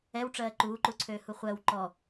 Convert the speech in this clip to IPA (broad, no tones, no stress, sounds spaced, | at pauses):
ɛ w ʈ͡ʂ ɜː ǃ uː ǃ u ǀʰ øː h u χʷ ɜ w ǃ ɔ